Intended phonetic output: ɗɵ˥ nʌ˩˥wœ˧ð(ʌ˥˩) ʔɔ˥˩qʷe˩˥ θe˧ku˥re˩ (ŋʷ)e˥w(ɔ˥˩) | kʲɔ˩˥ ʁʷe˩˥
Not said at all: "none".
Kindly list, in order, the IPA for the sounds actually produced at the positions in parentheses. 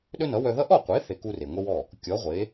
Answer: ʌ˥, ŋʷ, ɔ˥˩

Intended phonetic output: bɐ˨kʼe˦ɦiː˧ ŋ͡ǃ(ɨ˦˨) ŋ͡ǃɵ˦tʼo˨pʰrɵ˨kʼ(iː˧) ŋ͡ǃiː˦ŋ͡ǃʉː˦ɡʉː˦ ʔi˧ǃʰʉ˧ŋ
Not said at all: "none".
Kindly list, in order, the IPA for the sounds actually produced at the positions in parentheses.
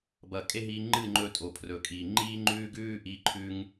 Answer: ɨ˦˨, iː˨

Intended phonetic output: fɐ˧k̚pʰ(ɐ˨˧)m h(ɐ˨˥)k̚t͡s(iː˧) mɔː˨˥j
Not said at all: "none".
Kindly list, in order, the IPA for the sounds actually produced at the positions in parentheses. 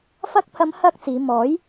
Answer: ɐ˨˧, ɐ˥, iː˨˧

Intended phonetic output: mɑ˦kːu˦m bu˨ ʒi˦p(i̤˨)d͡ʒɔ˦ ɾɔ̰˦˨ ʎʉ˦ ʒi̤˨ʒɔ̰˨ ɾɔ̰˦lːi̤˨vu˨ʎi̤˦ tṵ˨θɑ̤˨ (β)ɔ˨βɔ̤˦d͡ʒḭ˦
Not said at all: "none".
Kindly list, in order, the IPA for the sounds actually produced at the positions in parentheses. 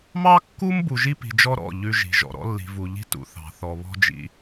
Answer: i̤˨, θ

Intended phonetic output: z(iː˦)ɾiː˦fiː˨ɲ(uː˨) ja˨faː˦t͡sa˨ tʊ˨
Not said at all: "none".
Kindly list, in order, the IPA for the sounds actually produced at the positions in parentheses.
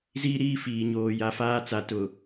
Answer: iː˦, oː˨

